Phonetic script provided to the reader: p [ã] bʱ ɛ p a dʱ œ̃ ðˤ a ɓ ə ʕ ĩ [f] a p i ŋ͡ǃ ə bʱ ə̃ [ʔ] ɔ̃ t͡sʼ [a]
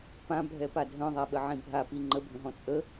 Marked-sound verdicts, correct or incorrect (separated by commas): correct, incorrect, incorrect, incorrect